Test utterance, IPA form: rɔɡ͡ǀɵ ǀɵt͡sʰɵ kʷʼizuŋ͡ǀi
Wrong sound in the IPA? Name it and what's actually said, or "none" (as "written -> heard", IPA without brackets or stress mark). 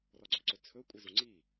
none